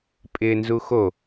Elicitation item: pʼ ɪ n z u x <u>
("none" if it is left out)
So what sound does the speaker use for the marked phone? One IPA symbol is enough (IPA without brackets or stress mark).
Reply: o